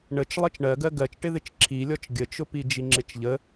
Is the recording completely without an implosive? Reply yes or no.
yes